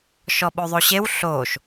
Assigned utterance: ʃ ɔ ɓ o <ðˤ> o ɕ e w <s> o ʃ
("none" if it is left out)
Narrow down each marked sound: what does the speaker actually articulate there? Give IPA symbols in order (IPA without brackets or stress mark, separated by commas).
ðˤ, ɬ